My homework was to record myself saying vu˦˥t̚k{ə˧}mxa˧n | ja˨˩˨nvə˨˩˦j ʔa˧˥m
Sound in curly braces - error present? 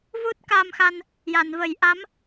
yes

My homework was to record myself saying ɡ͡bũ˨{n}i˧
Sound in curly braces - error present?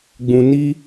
no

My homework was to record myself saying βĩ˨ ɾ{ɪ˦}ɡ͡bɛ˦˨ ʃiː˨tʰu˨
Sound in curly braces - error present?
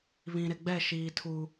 yes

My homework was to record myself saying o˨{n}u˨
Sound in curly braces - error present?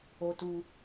yes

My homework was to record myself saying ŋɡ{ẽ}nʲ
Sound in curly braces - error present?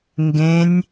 no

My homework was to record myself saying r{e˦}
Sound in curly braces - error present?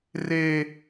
yes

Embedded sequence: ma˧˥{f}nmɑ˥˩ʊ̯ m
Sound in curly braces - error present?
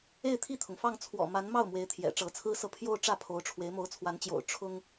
yes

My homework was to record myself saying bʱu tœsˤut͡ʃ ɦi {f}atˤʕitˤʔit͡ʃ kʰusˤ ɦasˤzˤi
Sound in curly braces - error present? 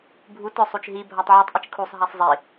yes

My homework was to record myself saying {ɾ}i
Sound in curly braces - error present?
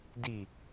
yes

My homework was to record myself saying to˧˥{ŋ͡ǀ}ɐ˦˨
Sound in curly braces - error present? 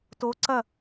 yes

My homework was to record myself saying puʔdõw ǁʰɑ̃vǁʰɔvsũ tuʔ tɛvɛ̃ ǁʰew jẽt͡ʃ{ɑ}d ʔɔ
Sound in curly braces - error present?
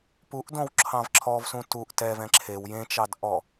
no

